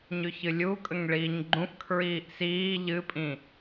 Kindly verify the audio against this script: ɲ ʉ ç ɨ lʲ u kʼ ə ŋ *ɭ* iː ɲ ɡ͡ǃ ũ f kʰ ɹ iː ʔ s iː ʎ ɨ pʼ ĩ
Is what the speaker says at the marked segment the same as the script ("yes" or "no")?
yes